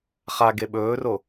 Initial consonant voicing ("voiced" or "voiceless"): voiceless